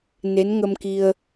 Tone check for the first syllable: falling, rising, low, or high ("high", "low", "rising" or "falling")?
rising